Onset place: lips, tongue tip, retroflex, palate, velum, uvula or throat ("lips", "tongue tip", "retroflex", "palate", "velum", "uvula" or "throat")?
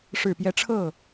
retroflex